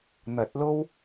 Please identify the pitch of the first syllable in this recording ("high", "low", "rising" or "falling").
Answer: rising